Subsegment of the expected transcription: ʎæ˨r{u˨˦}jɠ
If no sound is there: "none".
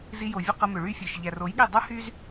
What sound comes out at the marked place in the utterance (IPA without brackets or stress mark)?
o˨˦